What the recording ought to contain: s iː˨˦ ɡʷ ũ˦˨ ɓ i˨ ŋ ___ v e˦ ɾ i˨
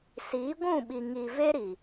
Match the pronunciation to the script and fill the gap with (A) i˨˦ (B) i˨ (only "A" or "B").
B